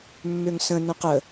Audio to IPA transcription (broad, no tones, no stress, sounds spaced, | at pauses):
mː ø ŋ s ə̃ n ə̃ q ə